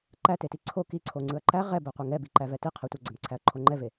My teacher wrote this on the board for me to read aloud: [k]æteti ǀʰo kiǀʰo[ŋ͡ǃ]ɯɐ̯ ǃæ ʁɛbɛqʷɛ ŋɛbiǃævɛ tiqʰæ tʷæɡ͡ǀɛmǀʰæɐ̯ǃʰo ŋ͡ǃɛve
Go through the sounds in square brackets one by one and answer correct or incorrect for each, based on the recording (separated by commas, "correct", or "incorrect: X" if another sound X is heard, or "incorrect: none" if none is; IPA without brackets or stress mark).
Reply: incorrect: ǃ, incorrect: ŋ͡ǀ